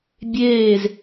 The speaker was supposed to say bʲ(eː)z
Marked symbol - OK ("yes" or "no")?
yes